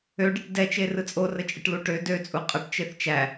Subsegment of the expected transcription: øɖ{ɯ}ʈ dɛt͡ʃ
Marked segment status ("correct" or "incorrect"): incorrect